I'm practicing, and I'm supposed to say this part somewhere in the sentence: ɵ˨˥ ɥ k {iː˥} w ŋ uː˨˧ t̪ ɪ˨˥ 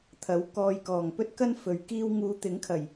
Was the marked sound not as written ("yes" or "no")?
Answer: no